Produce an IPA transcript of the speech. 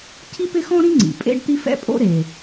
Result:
cʰ i˥ p ɪ˥ x ɔ̃˥ ɾ ĩ˥ ŋ͡ǀ ḭ˩ pʼ ḛ˥ ɖ t̪ i˥ f ɛ̰˥ pʼ o̰˥ ɾ e˩

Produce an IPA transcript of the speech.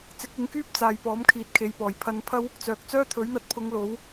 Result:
t͡s ɪ˨˥ k̚ ɪ˨˥ ŋ k yː˥ p̚ t͡s aː˨ j p ɔː˨˥ m kʰ iː˨˥ t̚ kʰ e˨ j p ɔː˨˩ j pʰ ɐ˧ n pʰ ɐ˥ w | t͡s œː˨ k̚ t͡s œː˥ t̪ʰ ɵ˨˥ ɥ n̪ ɐ˧ t̚ pʰ ʊ˨˧ ŋ l o˨˥ w

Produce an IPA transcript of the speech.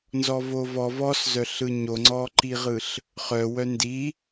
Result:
n z ɔ v o v ɔ v ɔ s z œ ɬ ɯ ɲ o ŋ͡ǀ ɔ ǃ i ʁ ɯ ɬ | χ œ w œ n d i

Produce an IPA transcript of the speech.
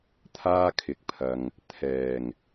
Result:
t̪ʰ aː˥ kʰ ɪ˨˥ k̚ pʰ ɐ˨ ŋ | t̪ʰ ɛː˨˩ ŋ

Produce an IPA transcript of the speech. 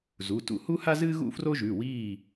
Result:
z u˩˧˩ t ṵ˦˨ h u˥ h a˥ z ɨː˥ ɣ ṵ˥ f r o˥ ʒ ʉ˩˧˩ w iː˦˨

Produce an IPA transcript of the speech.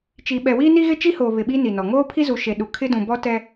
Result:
t͡ʃ i˨ ɓ ɛ˨ w iː˦ n i˦ ɣ ɪ˦ t͡ʃ i˦ h oː˨ β ɪ˨ ɓ i˦ n i˨ n ɔ˨ ŋ oː˦ pʰ i˦ z u˨ ʃ e˨ ɗ u˨ kʰ ɪ˦ d ũ˨ b ɔ˦ t ɛ˦

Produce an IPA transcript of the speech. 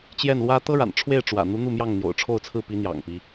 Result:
t͡ɕ j ɛ˥˩ n l w ä˥ t̪ ɤ˥ ɻ a̰˨˩ n ʈ͡ʂʰ w e˥˩ ɪ̯ ʈ͡ʂ w ä̰˨˩ n̪ u˧˥ n̪ u˥˧ m j ɑ˥˩ ŋ n̪ j o̰˨˩ ʊ̯ ʈ͡ʂʰ o˥˧ ʊ̯ t͡sʰ ɹ̩˥˩ p i˧˥ n̪ j ɑ̰˨˩ ŋ p i˦

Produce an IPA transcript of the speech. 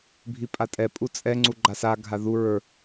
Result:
bʱ i pʼ a tʼ ɛ pʼ u t͡sʼ ɛ ŋ͡ǀ u ɡ͡ǃ a s a ɡʱ a ð u ɹ ə˞

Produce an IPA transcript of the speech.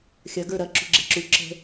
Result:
xʲ ɐ ɡ ə˞ ɾ ɐ ǁ ṳ ɡ͡ǁ e̤ ǁ u ǁ ə̤

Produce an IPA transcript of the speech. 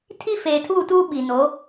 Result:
tʰ i˦ f eː˨ tʰ uː˦˨ t uː˦ ɓ i˨ n o˨˦

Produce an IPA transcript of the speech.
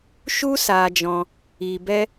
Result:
ʃ u˦ s aː˧ d͡ʒ ɔ̃˧ | iː˧ b ɛ˦

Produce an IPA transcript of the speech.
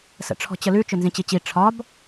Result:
s ə̰ ʈ͡ʂʰ ɔ̤ t͡ɕ ə l ʉ t͡ʃ ʏ n z ĩ t͡ɕ i t͡ɕ i ʈ͡ʂʰ ɒ b

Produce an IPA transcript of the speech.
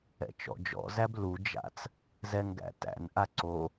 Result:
ɛ̰ t͡ʃ ɔ̰ d͡ʒ ɔ̰ z æ b l u d͡ʒ a̰ t͡s | z ɛ ŋ ɡ æ̰ t æ̰ n ʔ a ǀ o

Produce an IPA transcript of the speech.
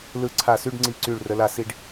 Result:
l ɯ˧˩ ǀʰ a˧˩ s y˥˧ ɖ ŋ͡ǀ i˧˩ ǀ y˧˩ ɭ r ə˩˧ l a˧ s i˧ ɖ

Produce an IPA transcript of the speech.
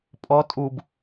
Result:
pʼ ɔ tʼ u b

